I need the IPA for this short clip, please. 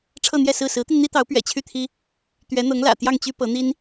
ʈ͡ʂʰ ɤ˥˧ n̪ j ɛ˥˧ s ɹ̩˥˩ s ɹ̩˧˥ t̪ i˧ n n̪ i˥ t̪ ɑ˧˥ ʊ̯ p ɥ ɛ̰˨˩ t͡ɕʰ y˥˩ t̪ʰ i˥ | t̪ ɥ ɛ˧˥ n̪ ɤ˧˥ ŋ l ä̰˨˩ t̪ j ɑ˥˩ ŋ t͡ɕ y˥ p ɤ˧˥ n̪ i˥ n

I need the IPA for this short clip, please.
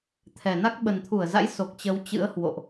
t̪ʰ ɛ˨˩ n a˦˥ k̚ ɓ ə˨˩ n t̪ʰ u˧˩ ə̯ z a̰˧˥ j s o˨˩ k̚ t͡ɕ ə˨˦ w t͡ɕ ɨ̰˧˥ ə̯ h w o̰˧˨ ʔ

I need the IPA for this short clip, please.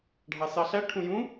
ɖʱ ɑ s ɑ ɬ æ ʈʰ ũ j ũ

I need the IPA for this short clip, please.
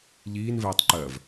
ʎ iː n v ɛː tˤ ǃ ɜ v

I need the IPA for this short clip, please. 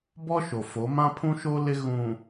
b ɔ˦ ʃ o˨ f o˨˦ m ã˦ pʰ ũ˦ ʃ o˦ l ɪ˦ ɣ ũ˨

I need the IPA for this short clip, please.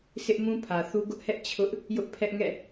s ɪ˦ ʔ m ũ˦ pʰ ä˨ θ u˦ ɡ ʊ˦ ʔ h ɛ˦ ʔ t͡ɕʰ ʊ˦ ʔ | j ʊ˦ ʔ pʰ ɛ˦ ʔ ŋ ɛ̰˦˨

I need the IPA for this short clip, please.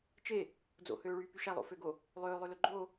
t͡ʃ e | d͡z o̰ h øː ɭ yː p y ʃ æ lˠ o̰ f ø ɡ o | lˠ øː lˠ ø l ø ɡ͡ǃ o

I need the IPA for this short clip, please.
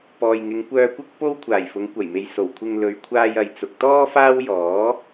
p ɔː˨ j ŋ ɪ˨˧ ŋ kʷ œː˧ kʷ ɐ˥ k̚ p o˥ w kʷʰ aː˨˩ j f ʊ˨˧ ŋ kʷ ɐ˨˩ j m e˨ j s o˨˩ w kʷʰ ɪ˧ ŋ l ɵ˨ ɥ kʷʰ aː˧ j ɐ˨ j t͡s ʊ˨ k̚ t̪ ɔː˥ f aː˥ w j ɔː˨˥

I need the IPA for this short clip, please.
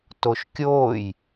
t o ʃ kʲ oː j

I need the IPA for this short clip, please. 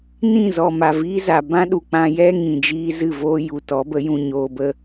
n ĩ˦˨ z ɔ˨ m a˨ v iː˦ z a˨ b ã˦ ɗ u˨ k͡p ã˧ j ɛ˦ ŋ ĩ˨ d͡ʒ iː˦ z ɨ˦˨ v oː˦ j u˨ t ɔ˨˦ b ə˨˦ j ũ˧ ɲ oː˧ b ə˦

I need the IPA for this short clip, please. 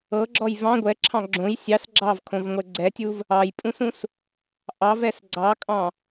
ɤ ɡ͡ǁ ɔ j v ɑ̃ ɡʷ ɛ ǁʰ ɑ̃ ɡ͡ǁ õ j sʲ ɑ s ɡ͡ǁ ɑ v kʰ õ v ŋʷ ɛ ɡ͡ǀ ɛ tʲ u v | ɑ j pʼ ũ s ũ s | ʔ ɑ v ɛ s ɡ͡ǀ ɑ kʼ ɑ̃

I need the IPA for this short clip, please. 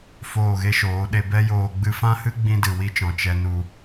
f oː˦˨ ɣ e˦ ʃ oː˨˦ ɗ e˧ b ɛ˦ j oː˧ ɡ͡b ɨ˧ f ã˦ h ɨ˦ ɡ͡b ĩ˧ d ɨ˨ w i˧ t͡ʃ ɔ̃˨ t͡ʃ ɛ˧ n u˧

